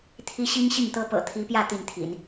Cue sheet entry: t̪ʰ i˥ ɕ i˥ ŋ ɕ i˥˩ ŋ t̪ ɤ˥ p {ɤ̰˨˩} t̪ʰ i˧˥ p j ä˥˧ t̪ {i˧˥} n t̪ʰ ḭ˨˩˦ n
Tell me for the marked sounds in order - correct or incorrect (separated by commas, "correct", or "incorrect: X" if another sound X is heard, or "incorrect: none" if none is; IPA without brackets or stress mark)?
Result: correct, incorrect: i˥˩